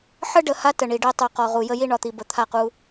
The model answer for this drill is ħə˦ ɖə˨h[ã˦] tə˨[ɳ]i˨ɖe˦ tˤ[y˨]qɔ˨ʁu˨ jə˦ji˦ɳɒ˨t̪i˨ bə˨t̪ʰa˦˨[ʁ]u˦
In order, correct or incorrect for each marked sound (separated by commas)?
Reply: incorrect, correct, incorrect, incorrect